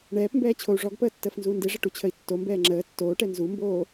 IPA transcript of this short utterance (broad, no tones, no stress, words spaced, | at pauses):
ɳɛːpmbɛː t͡ɕʰou̯ʐɔɡpəː tːəːfnzuːndeʐə ʈut͡ɕʰəi̯tːombɛː ŋ͡ǁəː tːoːʈɛ nzumboː